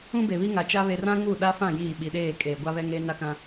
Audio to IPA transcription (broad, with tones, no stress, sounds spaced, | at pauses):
ũ˦ b e˨ β i˦ ŋ a˨ t͡ʃ a˦ β e˨ r ã˦ ŋ u˦˨ ɗ a˦ f ã˦˨ j iː˦˨ ɓ i˨ ɗ eː˦˨ kʼ eː˨ ɡʷ a˦ β ɛ˦ ŋ eː˦ n a˦ k ã˦